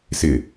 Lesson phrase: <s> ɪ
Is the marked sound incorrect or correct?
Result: correct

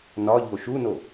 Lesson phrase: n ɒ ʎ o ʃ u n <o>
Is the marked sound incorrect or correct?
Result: correct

